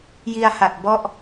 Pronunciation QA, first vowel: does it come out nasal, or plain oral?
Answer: oral